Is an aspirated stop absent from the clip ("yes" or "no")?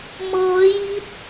yes